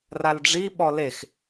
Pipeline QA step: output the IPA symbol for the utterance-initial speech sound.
r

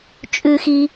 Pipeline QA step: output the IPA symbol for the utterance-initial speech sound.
t͡ʃʼ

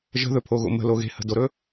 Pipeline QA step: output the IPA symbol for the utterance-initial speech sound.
ʒ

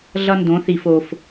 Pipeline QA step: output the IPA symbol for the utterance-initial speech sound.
ɮ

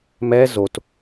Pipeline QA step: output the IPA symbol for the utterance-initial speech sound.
m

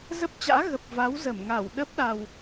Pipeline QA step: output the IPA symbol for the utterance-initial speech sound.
z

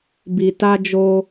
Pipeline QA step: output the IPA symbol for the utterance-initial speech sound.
b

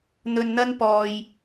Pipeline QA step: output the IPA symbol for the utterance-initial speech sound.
n̪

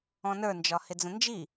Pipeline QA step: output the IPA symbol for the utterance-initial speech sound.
ɔ̃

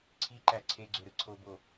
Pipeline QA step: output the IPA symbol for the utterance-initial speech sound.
ǀʰ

